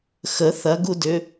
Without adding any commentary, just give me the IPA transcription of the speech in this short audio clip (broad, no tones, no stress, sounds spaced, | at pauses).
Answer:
x ə θ ɐ ɡ u d ʏ